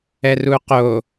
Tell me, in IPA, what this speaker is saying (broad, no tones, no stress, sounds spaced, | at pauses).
ɛ r u q o